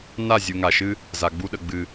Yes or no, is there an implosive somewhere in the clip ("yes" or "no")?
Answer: yes